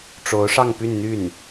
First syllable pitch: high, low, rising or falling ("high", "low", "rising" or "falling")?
rising